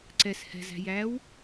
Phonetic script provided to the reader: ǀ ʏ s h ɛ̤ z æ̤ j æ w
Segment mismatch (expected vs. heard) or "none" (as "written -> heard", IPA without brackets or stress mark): ʏ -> ɛ